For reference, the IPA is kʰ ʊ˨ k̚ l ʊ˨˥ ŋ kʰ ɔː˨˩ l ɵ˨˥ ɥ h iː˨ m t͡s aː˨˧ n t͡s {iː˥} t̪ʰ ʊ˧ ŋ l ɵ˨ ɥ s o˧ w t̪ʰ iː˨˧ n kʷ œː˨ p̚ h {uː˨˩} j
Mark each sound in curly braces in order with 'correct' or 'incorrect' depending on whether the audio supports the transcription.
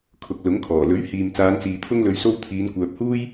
incorrect: iː˨, incorrect: uː˥

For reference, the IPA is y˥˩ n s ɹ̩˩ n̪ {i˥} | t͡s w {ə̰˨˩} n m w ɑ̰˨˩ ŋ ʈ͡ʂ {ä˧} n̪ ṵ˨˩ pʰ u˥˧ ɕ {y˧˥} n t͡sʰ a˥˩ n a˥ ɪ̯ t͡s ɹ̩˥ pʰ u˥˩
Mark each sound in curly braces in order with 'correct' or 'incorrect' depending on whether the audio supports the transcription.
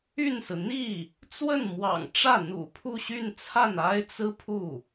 incorrect: i˥˩, incorrect: ə˥˩, incorrect: ä˥˩, incorrect: y˥˧

